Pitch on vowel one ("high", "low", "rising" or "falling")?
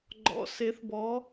rising